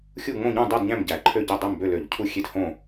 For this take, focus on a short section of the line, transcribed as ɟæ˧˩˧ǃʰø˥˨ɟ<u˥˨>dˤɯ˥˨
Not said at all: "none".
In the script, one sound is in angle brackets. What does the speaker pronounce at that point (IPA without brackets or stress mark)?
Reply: ø˥˨